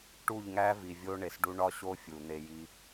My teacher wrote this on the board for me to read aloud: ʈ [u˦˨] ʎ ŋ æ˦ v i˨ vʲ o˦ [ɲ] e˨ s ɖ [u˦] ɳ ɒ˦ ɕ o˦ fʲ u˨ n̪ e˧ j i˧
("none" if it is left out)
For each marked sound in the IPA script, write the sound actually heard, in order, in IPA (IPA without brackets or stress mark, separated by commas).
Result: u˦˨, ɳ, u˦